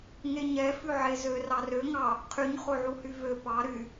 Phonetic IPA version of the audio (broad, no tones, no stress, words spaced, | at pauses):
ŋeɲɛ fʉʕezør ɑrø ŋɑ | qʰyɲ χoʕuhyvø pɑ ɾy